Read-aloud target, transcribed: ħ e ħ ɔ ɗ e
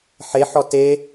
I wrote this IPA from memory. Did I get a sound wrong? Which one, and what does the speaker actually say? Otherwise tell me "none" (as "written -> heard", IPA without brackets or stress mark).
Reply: ɗ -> t